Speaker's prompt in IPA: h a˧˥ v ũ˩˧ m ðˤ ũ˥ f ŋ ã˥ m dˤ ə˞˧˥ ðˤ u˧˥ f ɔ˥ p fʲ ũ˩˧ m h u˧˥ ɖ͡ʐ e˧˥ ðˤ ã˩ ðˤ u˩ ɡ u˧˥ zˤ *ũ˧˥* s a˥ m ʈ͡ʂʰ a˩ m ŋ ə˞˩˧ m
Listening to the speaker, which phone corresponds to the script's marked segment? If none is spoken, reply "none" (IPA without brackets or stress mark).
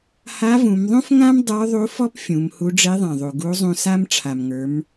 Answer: ũ˧